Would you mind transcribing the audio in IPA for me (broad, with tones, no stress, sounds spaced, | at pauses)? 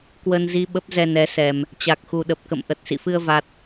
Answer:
k w ə˧ n z i˧ ɓ ə˦˥ p̚ z ɛ˧ n ɛ˨˦ s ɛ˨˩ m | t͡ɕ a˨˩ k̚ x u˨˩ ɗ ə˨˩ p̚ k ə̰˧˨ m ʔ ə˨˩ t̚ s ḭ˧˨ f ɨ˧ ə̯ v a˦˥ t̚